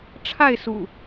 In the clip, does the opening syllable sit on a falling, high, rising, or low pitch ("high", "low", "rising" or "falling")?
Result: falling